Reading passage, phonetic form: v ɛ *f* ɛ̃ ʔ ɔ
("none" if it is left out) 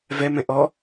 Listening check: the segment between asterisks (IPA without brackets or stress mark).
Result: m